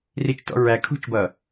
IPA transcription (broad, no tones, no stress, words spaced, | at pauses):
rit͡ʃtɔ̰ ɹæ kʰṳt͡ʃbʌ